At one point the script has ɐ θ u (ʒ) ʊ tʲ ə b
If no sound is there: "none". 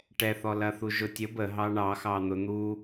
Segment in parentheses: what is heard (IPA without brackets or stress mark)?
ʒ